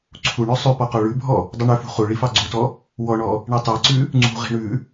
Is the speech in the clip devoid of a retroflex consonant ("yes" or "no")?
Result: no